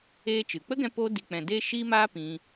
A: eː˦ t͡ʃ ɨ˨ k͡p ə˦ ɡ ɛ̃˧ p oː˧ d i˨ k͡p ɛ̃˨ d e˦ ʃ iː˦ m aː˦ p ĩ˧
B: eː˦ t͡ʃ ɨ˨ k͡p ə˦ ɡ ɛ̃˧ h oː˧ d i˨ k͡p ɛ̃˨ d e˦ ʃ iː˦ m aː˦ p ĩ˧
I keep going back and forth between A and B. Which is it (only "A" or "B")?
A